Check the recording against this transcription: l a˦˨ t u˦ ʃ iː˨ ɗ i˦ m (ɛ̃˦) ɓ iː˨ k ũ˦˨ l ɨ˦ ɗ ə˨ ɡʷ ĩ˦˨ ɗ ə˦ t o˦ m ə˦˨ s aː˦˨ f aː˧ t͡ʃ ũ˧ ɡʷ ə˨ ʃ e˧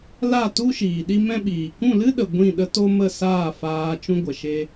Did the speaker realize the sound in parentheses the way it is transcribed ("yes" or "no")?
yes